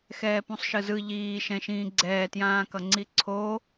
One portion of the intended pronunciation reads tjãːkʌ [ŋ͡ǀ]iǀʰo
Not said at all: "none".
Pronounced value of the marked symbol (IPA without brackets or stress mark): ŋ͡ǀ